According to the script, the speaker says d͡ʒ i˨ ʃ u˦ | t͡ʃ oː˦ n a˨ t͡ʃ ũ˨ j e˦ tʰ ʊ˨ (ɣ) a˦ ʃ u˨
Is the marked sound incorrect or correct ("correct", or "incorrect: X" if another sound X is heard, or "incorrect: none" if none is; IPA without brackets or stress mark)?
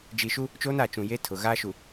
correct